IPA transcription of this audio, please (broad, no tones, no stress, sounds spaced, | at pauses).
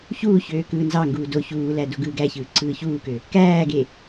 ç uː ç øː k ɯː n z ɑ ŋ ɡ uː d o ç uː l æ d o ɡ ɯː ɡ æ ç ɯː ǀ ɯː ç uː k ø | k æː ɡ e